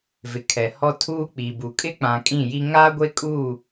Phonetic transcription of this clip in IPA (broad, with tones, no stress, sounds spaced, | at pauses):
v ɪ˨ kʰ ɛ˨ h ɔ˦ tʰ uː˦ k͡p i˨ b u˨ kʼ ɪ˦ k͡p ã˨ kʼ ĩ˦˨ j i˦ ŋ aː˦ ɡʷ e˦ kʼ uː˦˨